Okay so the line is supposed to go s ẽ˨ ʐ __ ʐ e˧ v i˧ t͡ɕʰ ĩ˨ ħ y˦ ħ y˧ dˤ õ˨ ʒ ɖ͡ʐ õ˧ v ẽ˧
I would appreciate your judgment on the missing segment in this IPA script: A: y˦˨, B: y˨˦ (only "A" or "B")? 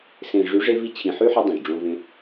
B